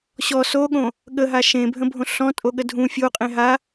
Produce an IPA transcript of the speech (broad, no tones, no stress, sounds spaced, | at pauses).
ɕ ɔ s o ɠ õ | ɠ ə ɦ a ʃ ẽ bʱ ə̃ bʱ õ ɬ ɔ̃ tʼ o ɠ ə dʱ ũ fʲ o qʼ ẽ ɦ a